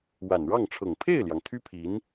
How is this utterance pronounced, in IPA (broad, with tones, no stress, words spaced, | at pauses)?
wa˨˩n ɻɑ˥˩ŋʈ͡ʂʰɤ˨˩ŋ pʰe˥˩ɪ̯ljɑ˩ŋ t̪ʰy˥pʰi˧˥n